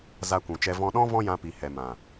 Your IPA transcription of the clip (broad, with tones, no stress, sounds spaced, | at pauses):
z a˧ kʷ ũ˨ t͡ʃ ɛ˧ v ɔ̃˧ ɗ ɔ̃˦ v ɔ̃˦ j ã˧ p i˨ h ɛ˨ m ã˨